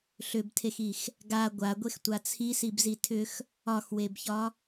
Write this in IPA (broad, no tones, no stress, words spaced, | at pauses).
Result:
ɬʏbtʰexix | ɡa ɡʷaɡʷextʷa t͡sʰisibzi tʰʏx | ɒxwebçɒ